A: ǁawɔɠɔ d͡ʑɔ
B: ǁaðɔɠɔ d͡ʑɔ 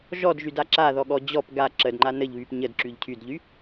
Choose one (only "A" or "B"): B